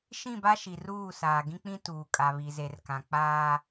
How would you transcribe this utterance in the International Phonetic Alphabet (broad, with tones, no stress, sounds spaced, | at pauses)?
ʃ ĩ˦˨ b a˦ ʃ i˨ r uː˦˨ s aː˨ ɡ ĩ˦ k͡p ĩ˦ t uː˨ kʼ a˨ β i˨ z e˨ r k ã˨ k͡p aː˦